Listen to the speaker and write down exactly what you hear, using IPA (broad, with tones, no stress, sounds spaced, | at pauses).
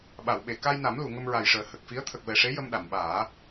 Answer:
ɓ a˨˩˨ w ɓ e˨˩˨ k a˧ j n a˨˩˦ m l u˨˩˨ ŋ ə˧ m ɹ a˨˩ j ʂ əː˨˩ h ə˨˩ k̚ f i˧˥ ə̯ t̪ʰ ə˨˩ k̚ v ɛ˨˩ ʂ e˧˥ j ə˧ m ɗ a˨˩˨ m ɓ aː˨˩˦